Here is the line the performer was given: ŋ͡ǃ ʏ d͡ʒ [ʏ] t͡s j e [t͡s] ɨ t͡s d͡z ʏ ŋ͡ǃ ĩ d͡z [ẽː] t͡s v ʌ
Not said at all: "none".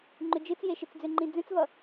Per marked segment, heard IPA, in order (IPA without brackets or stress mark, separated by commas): ɨ, ʃ, ẽ